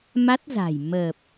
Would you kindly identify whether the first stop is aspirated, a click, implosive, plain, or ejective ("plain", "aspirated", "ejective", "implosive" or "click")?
plain